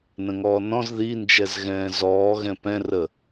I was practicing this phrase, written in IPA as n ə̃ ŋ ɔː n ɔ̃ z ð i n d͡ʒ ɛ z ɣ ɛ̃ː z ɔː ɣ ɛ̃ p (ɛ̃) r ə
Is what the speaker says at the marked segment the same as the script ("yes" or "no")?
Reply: yes